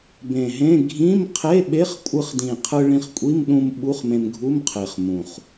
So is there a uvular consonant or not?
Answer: yes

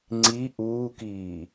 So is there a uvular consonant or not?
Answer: no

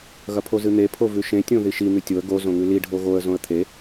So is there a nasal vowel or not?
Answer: yes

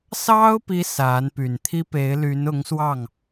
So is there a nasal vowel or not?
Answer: no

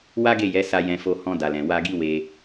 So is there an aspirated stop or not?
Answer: no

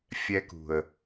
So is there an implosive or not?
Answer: no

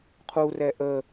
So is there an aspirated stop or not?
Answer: yes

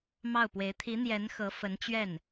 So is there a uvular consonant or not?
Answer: no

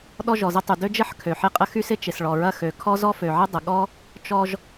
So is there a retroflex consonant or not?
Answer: yes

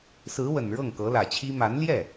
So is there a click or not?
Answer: no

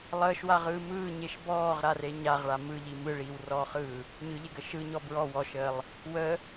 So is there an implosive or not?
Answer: no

